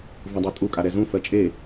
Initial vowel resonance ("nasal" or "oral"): nasal